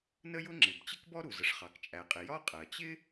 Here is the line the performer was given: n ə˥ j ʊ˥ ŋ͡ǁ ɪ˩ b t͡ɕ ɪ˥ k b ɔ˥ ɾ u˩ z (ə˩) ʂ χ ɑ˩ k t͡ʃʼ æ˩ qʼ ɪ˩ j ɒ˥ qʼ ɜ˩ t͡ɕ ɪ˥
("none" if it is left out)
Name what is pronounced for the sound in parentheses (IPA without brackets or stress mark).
ə˩